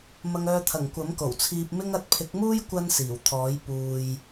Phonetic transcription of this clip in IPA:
m ɐ˧ ŋ œː˧ t̪ʰ ɐ˨˩ ŋ kʷ ɐ˨˥ m k o˨˩ w t͡sʰ iː˧ p̚ m ɪ˥ ŋ ɐ˧ t̚ pʰ ɪ˨˥ k̚ m uː˥ j kʷ ɐ˥ n s iː˨˩ w t̪ʰ ɔː˨˥ j p uː˨ j

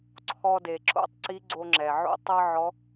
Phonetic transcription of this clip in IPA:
ǀʰ ɔ˧ d e˩ ǁ o̰˥ tˤ ǀ i˧˥ ɡ͡ǀ o˧ ŋ͡ǁ ɛ˩ ʕ o̰˥ tˤ ɤ˥ ʕ ɔ˧˥

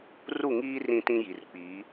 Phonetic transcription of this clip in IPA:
r u˦˨ ŋ iː˦ r ĩ˦ t ĩ˦ j i˨ r k͡p iː˨˦

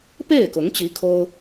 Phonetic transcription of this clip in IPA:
p e˥˩ ɪ̯ k ʊ˧˥ ŋ t͡ɕ i˧˥ kʰ o˥ ʊ̯

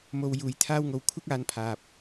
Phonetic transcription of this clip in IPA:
m o˧ w j uː˧ j t̪ʰ aː˥ w ŋ o˧ w kʷʰ ɪ˥ k̚ aː˧ n pʰ aː˨ p̚

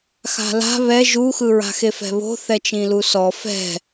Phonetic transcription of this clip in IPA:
x a̤ l a̤ β ɛ ʒ u x ɯ ɹ a̤ x e f ɛ̤ β o̤ θ ɛ t͡ʃ ĩ l u s ɔ f ɛ̤

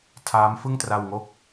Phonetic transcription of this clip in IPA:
tʰ aː˦˥ m f ɯ˥˩ ŋ t r a˧ w ŋ o˥˩ k̚

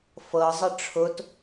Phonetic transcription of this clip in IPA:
f ɤ zˤ ə ʈ͡ʂʰ ʊ t

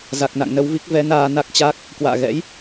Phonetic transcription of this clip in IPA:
z a˨˩ k̚ n a̰˧˨ ŋ n ə˧ w v i˦˥ k̚ v ɛ˨˦ n aː˧ n a˦˥ k̚ t͡ɕ a˦˥ k̚ | k w a̰ː˧˨ ɣ ɛ̰˧˥ j

